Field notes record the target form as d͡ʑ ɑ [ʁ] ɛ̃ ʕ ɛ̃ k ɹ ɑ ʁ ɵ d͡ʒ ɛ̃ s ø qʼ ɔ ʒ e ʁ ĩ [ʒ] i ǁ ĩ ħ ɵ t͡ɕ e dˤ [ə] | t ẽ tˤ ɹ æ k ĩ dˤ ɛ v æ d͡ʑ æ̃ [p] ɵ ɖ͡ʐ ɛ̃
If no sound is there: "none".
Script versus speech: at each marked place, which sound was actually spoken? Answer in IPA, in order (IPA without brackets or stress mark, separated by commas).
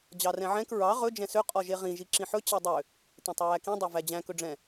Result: r, ʒ, ø, k